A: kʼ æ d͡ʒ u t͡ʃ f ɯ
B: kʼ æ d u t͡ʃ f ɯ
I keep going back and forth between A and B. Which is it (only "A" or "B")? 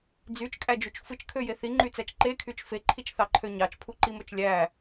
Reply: A